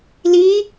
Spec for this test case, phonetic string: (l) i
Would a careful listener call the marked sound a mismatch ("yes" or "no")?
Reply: no